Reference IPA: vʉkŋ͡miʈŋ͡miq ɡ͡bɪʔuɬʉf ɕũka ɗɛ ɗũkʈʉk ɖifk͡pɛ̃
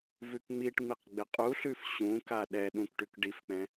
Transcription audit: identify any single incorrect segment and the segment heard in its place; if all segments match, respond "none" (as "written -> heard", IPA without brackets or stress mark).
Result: ʔ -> qʼ